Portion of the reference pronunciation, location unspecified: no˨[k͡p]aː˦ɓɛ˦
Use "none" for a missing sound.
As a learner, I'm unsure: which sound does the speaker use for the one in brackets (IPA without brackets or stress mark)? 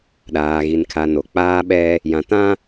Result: k͡p